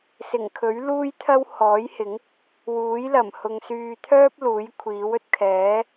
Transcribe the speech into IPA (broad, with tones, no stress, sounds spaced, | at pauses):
s ɪ˨˩ ŋ kʰ ɵ˨˥ ɥ l uː˥ j t̪ʰ ɐ˥ w h ɔː˨˥ j h ɪ˨˥ ŋ | w uː˨˥ j l ɐ˨˩ m h ʊ˨ ŋ s yː˨ t̪ʰ œː˥ p̚ l uː˨˥ j kʷʰ iː˨˥ w ɵ˧ t̚ kʰ ɛː˨˥